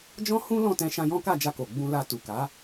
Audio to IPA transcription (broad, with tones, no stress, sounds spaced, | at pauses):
d͡ʒ ɔ̃˦ h ũ˦ l ɔ̃˦˨ t ɛ̃˧ ʃ ã˧ j ɔ̃˦ k a˦˨ d͡ʒ a˧ k o˨ ɡ͡b ũ˧ l a˧ t u˨ k a˨˦